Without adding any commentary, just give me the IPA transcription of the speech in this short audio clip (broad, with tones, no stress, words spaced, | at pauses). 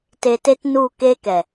te˧te˦t nu˦˨ ke˦kɛ˨